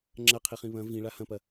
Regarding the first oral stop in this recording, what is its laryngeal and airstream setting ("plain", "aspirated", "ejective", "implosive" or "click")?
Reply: click